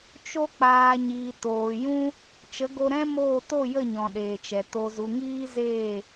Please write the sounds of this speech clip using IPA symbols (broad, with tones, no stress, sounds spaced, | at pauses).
t͡ʃ o˧ k͡p aː˨ ɲ iː˨ t oː˨ j ũ˦ | t͡ʃ ə˨˦ ɡ o˧ ɾ ɛ̃˦ m oː˦˨ t o˦˨ j ə˦˨ ɲ ɔ̃˨ ɗ eː˨ t͡ʃ ɛ˨ t o˨ z u˨ ŋ iː˧ z eː˦˨